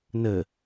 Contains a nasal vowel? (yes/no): no